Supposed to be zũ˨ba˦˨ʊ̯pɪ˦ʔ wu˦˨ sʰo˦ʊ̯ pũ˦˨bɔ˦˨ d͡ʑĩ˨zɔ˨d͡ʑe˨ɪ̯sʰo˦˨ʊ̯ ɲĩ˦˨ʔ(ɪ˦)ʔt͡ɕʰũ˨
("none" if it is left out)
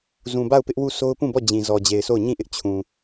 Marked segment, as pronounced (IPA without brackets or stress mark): ɪ˦